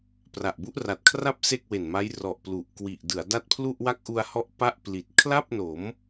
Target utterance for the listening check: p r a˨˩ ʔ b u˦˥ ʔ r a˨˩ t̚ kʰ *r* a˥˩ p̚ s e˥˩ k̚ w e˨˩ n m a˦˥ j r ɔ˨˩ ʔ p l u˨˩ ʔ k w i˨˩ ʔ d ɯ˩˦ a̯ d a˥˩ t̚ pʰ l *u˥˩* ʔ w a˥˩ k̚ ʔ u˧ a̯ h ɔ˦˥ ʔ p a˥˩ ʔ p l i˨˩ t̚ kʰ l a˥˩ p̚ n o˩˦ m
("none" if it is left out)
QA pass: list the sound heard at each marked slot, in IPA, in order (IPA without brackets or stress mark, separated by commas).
r, u˥˩